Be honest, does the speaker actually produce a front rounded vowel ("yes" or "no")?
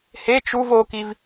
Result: no